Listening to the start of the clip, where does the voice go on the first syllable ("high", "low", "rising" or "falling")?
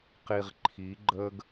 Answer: low